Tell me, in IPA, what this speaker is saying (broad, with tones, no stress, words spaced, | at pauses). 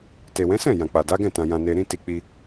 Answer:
te˨wɛ̃˨˦sɛ̃˦˨ jã˨k͡pa˨da˨˦ɡɛ̃˦˨ tã˧jã˧ne˧ɾĩ˦ ti˧k͡pi˧